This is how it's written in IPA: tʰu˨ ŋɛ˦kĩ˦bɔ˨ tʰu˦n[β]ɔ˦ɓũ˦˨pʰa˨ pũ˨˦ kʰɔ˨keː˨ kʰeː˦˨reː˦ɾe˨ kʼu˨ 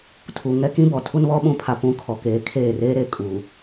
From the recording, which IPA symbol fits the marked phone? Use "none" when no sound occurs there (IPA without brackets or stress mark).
β